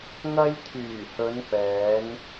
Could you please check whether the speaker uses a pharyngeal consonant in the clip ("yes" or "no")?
no